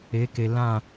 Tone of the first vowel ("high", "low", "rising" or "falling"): rising